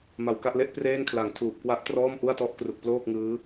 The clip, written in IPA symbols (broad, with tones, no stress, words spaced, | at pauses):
ma˨˩wka˥˩ʔle˦˥ʔ preː˥˩nkʰla˨˩ŋ tʰuː˨˩p̚kwa˦˥ʔtrɔː˥˩m ʔu˥˩a̯tɔ˥˩ʔkru˨˩k̚ ploː˥˩k̚ŋɯː˦˥